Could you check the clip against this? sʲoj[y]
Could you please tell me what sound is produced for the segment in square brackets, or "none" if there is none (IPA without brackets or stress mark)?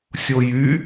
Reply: y